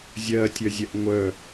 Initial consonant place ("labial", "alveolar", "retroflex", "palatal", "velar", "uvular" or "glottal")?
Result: alveolar